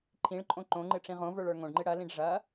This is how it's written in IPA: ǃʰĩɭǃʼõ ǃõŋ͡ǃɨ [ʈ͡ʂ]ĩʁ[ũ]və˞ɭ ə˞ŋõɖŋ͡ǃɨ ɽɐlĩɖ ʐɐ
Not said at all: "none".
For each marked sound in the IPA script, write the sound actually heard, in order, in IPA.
ʈ͡ʂ, õ

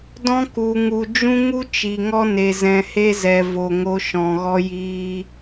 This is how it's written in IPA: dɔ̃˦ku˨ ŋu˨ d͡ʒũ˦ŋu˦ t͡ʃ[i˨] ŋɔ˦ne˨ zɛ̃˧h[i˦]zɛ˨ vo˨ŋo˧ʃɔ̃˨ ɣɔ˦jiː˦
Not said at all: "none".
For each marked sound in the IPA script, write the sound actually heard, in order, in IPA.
i˨, e˦

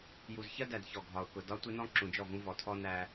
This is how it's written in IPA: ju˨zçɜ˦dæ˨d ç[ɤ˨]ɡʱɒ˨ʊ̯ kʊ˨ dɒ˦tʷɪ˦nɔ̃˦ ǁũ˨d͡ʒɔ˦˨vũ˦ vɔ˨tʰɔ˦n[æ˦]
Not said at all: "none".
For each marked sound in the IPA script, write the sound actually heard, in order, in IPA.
ɔ˨, æ˦

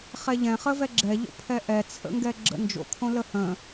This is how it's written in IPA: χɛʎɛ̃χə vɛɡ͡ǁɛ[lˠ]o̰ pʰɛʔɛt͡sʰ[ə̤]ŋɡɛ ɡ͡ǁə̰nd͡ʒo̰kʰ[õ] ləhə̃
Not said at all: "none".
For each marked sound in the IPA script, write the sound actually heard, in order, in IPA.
ʎ, ə̰, õ

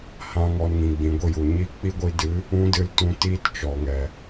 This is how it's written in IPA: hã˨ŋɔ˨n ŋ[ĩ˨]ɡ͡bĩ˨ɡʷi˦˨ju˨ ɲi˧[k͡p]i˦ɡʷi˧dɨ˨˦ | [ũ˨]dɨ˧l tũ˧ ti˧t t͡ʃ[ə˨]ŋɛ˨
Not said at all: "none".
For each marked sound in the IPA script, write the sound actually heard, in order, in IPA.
ĩ˨, k͡p, ũ˦, ɔ˨

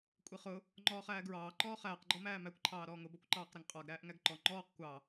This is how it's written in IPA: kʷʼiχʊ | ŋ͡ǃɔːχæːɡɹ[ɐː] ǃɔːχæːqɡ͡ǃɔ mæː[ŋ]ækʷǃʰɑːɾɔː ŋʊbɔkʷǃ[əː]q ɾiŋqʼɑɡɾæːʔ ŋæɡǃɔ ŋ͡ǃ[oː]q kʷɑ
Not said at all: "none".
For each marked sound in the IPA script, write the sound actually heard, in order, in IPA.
ɑː, m, ɑː, ɔː

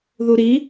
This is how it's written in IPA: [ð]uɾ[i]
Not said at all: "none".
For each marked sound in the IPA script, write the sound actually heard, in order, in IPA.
ð, i

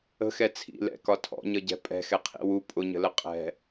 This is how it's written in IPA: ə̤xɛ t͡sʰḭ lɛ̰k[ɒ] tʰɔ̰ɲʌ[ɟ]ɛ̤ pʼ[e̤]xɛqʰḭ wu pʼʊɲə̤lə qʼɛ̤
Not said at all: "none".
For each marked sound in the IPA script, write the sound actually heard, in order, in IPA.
ɒ, ɟ, ɛ̤

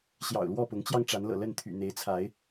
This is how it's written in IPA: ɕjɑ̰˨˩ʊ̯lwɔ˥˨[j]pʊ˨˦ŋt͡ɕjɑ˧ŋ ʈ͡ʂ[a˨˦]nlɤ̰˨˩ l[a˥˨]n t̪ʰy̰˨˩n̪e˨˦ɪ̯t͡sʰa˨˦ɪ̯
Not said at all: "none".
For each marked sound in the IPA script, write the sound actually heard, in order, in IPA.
none, a˨˦, ə˥˨

